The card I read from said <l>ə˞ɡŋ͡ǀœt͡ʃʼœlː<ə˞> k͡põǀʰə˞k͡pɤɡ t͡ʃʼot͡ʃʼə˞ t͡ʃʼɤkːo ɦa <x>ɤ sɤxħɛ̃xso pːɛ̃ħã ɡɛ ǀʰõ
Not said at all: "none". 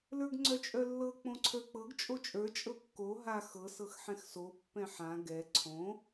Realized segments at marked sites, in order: l, ɤ, x

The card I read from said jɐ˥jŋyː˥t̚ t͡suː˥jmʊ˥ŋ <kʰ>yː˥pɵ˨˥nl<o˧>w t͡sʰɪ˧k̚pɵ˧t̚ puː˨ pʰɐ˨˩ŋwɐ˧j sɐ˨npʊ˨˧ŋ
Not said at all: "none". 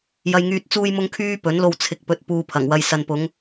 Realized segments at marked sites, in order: kʰ, o˧

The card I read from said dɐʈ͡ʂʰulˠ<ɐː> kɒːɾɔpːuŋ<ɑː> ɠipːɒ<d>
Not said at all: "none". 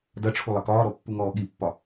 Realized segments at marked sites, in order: ɐ, ɔː, none

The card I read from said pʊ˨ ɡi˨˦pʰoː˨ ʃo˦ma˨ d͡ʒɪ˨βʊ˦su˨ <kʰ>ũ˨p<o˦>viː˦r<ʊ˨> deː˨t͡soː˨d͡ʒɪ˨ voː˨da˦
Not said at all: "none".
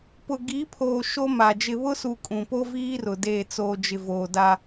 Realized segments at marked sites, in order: kʼ, o˦, ʊ˨

